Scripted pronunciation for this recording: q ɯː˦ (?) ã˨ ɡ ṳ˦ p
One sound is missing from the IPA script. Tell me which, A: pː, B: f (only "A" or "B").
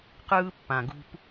A